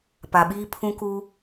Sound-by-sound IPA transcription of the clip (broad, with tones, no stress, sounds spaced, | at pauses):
p a˨ ɓ iː˦ pʰ ũ˦ k u˦